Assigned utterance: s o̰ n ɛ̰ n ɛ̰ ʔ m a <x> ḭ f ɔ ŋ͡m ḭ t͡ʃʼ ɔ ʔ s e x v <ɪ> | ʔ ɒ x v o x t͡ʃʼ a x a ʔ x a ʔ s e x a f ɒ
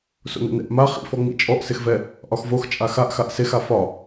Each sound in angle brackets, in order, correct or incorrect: incorrect: χ, incorrect: ɛ

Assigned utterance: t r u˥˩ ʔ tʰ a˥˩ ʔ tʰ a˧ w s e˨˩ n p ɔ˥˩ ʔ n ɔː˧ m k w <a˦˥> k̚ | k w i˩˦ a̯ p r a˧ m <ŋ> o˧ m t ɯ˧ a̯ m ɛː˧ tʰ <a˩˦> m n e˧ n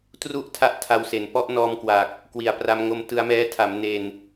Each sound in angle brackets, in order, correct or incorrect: incorrect: a˨˩, correct, correct

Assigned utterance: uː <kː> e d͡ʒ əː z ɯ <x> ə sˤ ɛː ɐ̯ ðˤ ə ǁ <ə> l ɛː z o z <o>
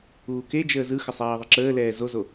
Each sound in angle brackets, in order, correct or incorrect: incorrect: k, correct, incorrect: əː, correct

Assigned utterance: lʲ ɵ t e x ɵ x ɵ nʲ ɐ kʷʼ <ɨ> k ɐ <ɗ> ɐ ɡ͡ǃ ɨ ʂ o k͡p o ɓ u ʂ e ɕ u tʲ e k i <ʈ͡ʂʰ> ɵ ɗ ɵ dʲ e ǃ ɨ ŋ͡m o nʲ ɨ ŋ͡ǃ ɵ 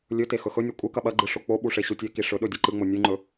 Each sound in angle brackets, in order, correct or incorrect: correct, incorrect: ɓ, incorrect: ʂ

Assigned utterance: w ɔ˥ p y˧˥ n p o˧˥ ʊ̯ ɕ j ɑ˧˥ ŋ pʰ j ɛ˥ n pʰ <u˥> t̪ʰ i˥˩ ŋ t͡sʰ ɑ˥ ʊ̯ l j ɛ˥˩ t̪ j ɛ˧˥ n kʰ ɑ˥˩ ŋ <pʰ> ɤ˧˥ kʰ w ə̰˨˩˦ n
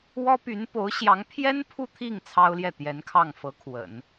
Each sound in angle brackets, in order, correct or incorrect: incorrect: u˥˧, incorrect: f

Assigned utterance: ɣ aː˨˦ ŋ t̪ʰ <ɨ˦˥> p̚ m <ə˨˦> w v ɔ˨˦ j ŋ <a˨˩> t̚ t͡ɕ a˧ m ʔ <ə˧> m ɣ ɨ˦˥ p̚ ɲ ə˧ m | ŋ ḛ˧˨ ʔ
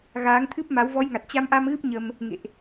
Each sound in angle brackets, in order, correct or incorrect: correct, incorrect: a˨˦, correct, incorrect: a˧

